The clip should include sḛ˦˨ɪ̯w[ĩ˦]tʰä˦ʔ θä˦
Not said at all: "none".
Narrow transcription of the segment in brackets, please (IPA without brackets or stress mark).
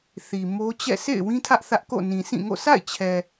ĩ˦